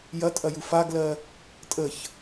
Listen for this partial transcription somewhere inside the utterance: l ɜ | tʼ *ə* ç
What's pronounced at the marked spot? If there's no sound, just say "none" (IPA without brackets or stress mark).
ə